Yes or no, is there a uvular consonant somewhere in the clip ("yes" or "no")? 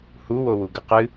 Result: yes